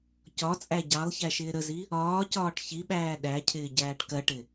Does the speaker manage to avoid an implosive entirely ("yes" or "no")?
no